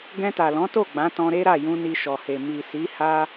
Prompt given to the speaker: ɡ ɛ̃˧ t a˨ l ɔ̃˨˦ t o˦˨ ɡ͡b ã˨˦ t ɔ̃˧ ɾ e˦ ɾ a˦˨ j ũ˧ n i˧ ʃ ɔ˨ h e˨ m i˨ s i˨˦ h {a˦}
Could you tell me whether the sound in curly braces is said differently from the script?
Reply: no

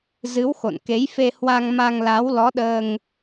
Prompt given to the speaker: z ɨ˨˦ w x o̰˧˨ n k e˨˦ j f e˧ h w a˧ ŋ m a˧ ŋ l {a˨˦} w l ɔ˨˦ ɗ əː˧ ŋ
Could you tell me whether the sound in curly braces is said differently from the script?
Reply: no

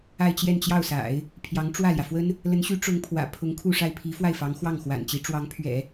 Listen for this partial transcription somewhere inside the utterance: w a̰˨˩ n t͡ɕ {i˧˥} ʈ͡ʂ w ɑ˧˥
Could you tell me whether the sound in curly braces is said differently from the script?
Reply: no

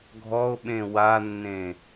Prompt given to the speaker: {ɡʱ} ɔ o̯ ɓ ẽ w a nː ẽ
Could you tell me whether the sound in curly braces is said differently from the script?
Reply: no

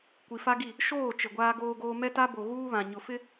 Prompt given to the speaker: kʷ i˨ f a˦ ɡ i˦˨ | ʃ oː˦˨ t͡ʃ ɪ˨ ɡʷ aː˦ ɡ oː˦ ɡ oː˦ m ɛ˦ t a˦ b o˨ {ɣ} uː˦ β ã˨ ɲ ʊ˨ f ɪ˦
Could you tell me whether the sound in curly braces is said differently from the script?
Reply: no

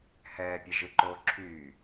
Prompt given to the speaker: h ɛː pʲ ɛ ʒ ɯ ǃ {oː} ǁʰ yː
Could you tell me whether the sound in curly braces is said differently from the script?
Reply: no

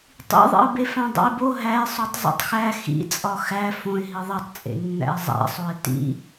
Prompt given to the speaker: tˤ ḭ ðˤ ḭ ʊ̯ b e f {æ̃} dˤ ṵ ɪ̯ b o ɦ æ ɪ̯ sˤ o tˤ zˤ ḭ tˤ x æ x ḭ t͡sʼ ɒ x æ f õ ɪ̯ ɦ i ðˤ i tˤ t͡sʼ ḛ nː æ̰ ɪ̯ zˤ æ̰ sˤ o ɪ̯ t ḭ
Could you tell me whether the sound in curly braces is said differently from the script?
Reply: no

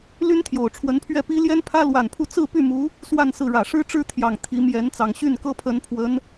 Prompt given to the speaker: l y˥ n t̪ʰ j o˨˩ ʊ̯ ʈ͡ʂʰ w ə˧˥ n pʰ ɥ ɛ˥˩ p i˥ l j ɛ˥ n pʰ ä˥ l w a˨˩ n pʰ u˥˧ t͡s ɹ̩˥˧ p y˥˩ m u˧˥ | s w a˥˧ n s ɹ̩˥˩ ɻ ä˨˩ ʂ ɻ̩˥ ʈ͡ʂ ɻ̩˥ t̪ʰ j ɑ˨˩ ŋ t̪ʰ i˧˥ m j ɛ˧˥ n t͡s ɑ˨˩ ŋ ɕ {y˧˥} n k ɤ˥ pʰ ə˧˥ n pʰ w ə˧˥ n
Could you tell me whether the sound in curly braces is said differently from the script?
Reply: yes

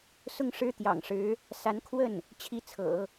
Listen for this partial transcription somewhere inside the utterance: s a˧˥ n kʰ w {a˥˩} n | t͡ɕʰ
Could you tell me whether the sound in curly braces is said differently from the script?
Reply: yes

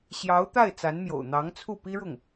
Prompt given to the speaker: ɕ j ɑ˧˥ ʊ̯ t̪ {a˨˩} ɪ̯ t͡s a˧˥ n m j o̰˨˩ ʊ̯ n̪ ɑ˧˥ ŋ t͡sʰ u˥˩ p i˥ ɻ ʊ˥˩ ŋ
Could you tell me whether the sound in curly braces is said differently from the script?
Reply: yes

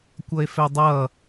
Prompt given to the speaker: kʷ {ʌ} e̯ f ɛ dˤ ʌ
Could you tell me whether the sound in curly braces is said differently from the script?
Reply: no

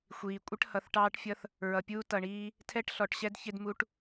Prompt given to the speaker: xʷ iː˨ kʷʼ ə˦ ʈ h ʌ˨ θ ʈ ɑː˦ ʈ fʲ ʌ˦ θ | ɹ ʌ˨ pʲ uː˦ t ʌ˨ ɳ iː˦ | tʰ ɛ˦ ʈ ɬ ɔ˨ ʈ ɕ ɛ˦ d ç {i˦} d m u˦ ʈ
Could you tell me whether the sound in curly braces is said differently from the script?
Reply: yes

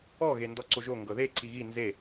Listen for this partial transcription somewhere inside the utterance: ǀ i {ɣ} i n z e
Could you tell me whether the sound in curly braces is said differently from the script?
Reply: no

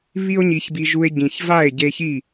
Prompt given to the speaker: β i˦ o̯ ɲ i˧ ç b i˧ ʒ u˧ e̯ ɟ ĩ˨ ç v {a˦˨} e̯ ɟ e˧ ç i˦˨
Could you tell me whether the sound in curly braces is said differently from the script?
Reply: no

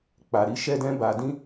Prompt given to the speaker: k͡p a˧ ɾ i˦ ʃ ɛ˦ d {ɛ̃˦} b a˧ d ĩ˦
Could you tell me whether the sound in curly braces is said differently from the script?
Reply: no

